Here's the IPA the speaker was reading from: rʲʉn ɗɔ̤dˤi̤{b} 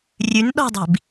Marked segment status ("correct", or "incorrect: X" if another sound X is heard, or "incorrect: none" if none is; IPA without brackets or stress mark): correct